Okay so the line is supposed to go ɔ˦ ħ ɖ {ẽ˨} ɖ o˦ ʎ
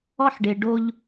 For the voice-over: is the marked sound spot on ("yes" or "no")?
no